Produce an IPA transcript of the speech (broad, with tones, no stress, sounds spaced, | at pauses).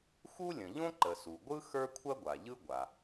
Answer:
x u˥ lʲ ə̃˩ ʎ õ˥ ǃ ə˩ s u˩ ɡʷ ɯ˥ x ə˞˥ kʷʰ ɐ˥ ɡʷ a˩ ʎ ɯ˥ ɡʷ a˩